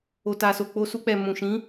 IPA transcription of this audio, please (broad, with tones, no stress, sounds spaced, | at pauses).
o˨ t a˨ s o˨ k͡p o˧ s u˧ k͡p ɛ˨ m ũ˨ ʃ ĩ˨˦